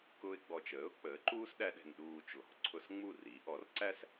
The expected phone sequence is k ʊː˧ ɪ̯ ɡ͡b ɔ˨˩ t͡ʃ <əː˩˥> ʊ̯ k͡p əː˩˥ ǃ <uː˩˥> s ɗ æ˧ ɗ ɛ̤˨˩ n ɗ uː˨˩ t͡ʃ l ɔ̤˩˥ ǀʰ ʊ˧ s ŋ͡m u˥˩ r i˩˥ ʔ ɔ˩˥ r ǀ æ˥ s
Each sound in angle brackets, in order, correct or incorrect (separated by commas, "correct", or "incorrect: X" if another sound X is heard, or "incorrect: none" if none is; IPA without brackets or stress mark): correct, incorrect: uː˥